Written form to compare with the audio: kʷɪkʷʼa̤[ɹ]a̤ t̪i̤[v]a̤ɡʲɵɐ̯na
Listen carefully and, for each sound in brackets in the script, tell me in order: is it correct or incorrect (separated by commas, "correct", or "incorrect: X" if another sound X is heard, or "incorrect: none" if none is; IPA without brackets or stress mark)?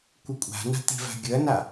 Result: incorrect: n, correct